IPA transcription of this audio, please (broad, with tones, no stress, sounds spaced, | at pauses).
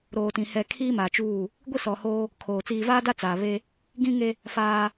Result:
ɾ oː˨ t ĩ˨ h ɛ˨ kʰ iː˦ m a˨ t͡ʃ uː˦˨ | ɡʷ i˦ s ɔ˨ h oː˦ | kʰ oː˨ t͡s iː˨ v aː˦ d a˦ t͡s aː˨ β e˦ | ɡ ĩ˦ ŋ e˦ | f aː˦